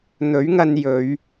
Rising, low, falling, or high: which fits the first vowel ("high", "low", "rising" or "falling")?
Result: rising